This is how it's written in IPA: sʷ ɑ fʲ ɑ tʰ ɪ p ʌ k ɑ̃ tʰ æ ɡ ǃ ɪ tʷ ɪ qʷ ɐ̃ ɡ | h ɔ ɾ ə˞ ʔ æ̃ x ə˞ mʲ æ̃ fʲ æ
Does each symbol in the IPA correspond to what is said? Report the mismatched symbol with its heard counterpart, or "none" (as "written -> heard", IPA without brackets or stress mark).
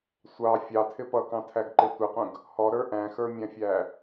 ɐ̃ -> ə̃